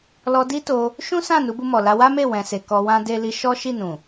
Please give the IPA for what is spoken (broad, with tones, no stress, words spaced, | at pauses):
lɔ˧di˦to˧ | ʃũ˦sã˦˨ nu˨˦bu˧mɔ˨la˧ wa˦me˦˨ wɛ̃˨se˨ kɔ˧wã˦de˦ li˧ʃɔ˦ ʃi˦˨nũ˨